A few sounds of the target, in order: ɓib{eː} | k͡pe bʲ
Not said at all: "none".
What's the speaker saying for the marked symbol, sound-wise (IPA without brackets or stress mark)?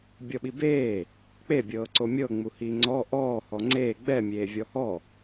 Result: eː